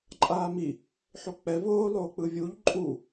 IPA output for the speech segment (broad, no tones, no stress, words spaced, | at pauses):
ǃʼaːmi | ħok͡pɛ voːlˠoː k͡pɯvʲuʎ ǃʼu